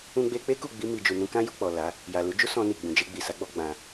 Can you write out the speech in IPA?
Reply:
ũ˦ɡ͡be˦ k͡pe˦ku˦˨ɡ͡bi˧ mi˨d͡ʒu˨nũ˧kã˦ ju˦˨k͡pɔ˨ la˨˦ | ja˨ lu˨˦d͡ʒu˦sɔ̃˧ ni˨ɡ͡bũ˨ d͡ʒe˧ɡ͡bi˨sa˨˦ɡ͡bɔ˧ ɡ͡bã˧

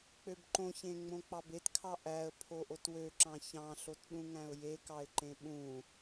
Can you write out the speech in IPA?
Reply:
k͡pøbǃõçẽ ŋ͡mõk͡pɑbetkʰɑ ʔæə̯ pʰoʔotwøǁɑ̃ çɑ̃ɬot ɗũŋæ̃ʊ̯jekɑɪ̯ ǃẽɓũ

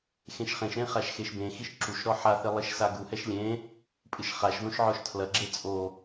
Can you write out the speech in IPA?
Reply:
xẽʃχẽʃɾẽ χaʃxeʃbẽxiʃ ǁuʃɾɔ ħaθe lˠiʃsaɡuhɛʃ lʲẽ | pʼɨʃχaʃðõʃ ʕɔʃtʰlɐɡ͡ǁe t͡sʼo

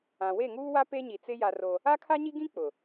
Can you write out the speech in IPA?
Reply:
ã˨we˦˨ŋuː˦wa˦ pe˦ɲi˨t͡sɪ˦ ja˦ro˦ | a˦kʰa˦ɲi˦ɡĩ˦ k͡pʊ˨

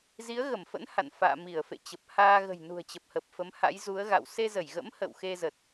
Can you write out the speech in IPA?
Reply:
zi˨˦ə̯ɣə˧˩mfə̰˧˥n ha̰˧˨nfa̰ː˧˨ mi˧˩ə̯fḛ˧˨ t͡ɕə˨˩p̚haː˧ ɣə̤˨˩jnṳ˨˩ə̯t͡ɕə˨˩p̚hə˨˩p̚ fə˨˦mha̰˧˥jzu˨˦ə̯ɣa̰˧˨w se˧zə˧˩jɣə̰˧˥m hə̰˧˨wxe˧zə˨˩t̚

